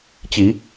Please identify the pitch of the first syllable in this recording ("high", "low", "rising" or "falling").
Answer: low